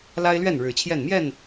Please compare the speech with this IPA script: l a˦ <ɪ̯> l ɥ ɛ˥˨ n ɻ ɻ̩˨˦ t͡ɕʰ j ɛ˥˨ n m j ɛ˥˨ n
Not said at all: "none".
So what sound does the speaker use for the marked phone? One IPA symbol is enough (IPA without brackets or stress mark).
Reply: ɪ̯